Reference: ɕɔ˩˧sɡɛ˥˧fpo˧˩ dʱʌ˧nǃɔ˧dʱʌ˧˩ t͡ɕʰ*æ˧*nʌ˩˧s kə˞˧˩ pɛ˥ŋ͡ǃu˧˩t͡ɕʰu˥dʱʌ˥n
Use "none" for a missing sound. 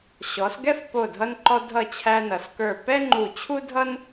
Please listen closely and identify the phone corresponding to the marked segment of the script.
æ˧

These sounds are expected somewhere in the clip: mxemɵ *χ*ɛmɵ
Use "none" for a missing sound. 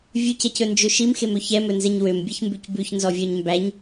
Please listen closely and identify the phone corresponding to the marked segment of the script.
ç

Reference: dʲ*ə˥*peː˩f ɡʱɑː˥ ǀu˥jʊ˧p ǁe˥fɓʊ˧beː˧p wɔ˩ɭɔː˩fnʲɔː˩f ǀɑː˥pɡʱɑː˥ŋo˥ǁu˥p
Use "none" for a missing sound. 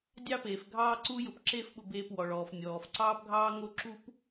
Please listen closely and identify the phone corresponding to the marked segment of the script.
ɑ˥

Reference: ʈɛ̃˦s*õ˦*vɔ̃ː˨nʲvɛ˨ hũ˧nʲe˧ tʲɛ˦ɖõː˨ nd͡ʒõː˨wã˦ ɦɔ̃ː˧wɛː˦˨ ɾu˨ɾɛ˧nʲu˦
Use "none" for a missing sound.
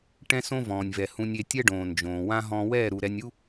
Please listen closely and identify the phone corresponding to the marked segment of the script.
õ˦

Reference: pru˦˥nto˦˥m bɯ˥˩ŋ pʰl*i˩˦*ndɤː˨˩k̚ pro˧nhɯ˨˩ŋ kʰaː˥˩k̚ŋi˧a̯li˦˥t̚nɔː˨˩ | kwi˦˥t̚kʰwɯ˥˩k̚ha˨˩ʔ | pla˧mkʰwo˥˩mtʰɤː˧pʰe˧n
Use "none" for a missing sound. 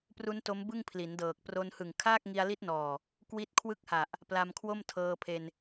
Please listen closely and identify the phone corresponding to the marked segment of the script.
i˩˦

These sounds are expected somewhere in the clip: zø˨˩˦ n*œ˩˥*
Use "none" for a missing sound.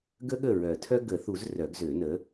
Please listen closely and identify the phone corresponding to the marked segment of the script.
ə˩˥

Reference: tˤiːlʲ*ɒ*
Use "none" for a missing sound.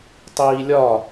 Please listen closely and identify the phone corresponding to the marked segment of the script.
ɒ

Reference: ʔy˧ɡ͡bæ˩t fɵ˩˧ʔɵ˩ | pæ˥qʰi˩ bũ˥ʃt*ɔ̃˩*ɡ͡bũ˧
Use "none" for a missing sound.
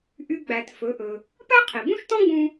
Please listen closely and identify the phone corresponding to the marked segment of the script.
ɔ̃˥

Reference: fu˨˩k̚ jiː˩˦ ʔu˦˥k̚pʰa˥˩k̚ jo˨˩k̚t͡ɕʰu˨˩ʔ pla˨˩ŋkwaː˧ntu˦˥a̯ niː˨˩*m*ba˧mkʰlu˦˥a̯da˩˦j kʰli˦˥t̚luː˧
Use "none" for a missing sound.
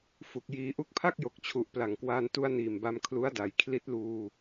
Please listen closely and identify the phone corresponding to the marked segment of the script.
m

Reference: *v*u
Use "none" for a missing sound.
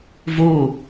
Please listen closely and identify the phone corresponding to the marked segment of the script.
v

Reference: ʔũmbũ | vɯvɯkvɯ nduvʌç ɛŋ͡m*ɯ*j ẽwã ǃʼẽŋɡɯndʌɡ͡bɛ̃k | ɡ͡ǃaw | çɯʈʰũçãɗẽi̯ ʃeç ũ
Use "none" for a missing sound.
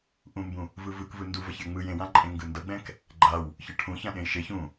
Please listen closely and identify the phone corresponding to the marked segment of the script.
ɯ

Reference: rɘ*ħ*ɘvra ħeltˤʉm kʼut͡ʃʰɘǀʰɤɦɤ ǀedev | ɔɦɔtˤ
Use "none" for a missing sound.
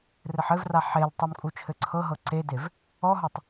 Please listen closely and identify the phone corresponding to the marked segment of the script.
ħ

